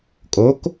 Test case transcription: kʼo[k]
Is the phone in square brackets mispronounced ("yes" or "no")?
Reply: no